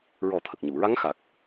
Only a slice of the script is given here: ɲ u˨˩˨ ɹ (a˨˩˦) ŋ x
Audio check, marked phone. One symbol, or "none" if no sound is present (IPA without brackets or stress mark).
a˧˥